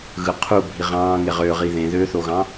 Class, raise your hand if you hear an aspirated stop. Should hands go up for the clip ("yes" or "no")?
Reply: yes